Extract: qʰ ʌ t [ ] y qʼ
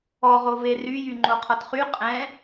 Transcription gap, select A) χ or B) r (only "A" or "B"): A